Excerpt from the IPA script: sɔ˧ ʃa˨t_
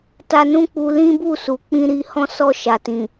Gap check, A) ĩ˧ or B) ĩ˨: B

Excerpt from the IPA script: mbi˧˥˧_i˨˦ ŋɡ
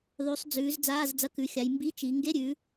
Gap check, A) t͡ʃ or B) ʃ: A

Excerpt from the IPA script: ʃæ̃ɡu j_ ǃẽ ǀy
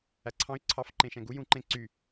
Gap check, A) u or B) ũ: B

